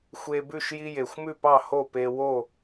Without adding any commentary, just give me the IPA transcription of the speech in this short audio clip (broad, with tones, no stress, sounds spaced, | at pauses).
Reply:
xʷ e˦ b ʉ˥˨ ʃ j i˦ j e˨˩ xʷ m ʉ˥˨ p ɑ˥˨ h o˥˨ p e˦ w o˥˨